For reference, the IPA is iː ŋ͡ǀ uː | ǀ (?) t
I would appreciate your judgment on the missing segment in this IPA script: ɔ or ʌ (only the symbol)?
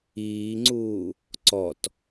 ɔ